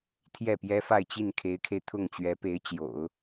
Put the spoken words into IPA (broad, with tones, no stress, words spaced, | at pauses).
t̪ʰjɛ˥˩pjɛ˥fa˥˧ɪ̯ t͡ɕi˥˩nkʰe˧˥ɪ̯kʰe˧ɪ̯ t̪ʰʊ˥˩ŋt͡ɕɥɛ˧˥pe˧˥ɪ̯ t͡ɕjo̰˨˩˦ʊ̯